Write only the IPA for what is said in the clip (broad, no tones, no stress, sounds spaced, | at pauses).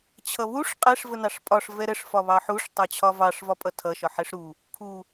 t͡ɕʰ ʌ β u ʂ qʼ ɛ ʂ v ə n ɑ ʂ pʼ ɒ ʂ v ɛ ɾ ə ʂ f ɒ β ɑ ħ u ʂ tˤ ɑ t͡ɕʰ ɒ v ɑ ʂ v ɒ pʼ ʌ tʰ ʌ ʃ ɒ ħ ɛ ʂ ɾ u | kʰ u